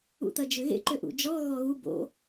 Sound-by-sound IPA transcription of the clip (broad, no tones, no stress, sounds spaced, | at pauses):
ṵ t̪ ɐ d͡ʒ ʏ ɣ ḛ ǃ ʏ ʔ ṵ d͡ʒ ɔ ɣ ɔ ɣ u b o̰